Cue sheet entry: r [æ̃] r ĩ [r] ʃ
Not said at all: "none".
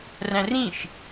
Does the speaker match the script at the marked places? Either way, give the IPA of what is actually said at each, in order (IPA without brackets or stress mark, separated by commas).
æ̃, none